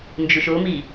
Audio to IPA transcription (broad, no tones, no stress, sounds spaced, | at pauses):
n d͡ʒ u ʃ o m iː